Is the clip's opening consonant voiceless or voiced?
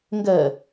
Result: voiced